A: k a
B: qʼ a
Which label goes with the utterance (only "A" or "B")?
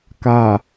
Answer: A